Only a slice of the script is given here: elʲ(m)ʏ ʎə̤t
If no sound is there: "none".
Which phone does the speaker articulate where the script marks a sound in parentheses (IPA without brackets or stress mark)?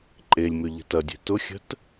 m